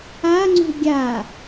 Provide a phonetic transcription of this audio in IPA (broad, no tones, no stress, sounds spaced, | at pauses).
a ŋ͡ǀ ṳ ɡʲ a